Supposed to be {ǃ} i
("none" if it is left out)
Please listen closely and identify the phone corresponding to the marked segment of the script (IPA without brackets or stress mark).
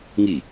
ŋ